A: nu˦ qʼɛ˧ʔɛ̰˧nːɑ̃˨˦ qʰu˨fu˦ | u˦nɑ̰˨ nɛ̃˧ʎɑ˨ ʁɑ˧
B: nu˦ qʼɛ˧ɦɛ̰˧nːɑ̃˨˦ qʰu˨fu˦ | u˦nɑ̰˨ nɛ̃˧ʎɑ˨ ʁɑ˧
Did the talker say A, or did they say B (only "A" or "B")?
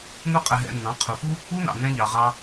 B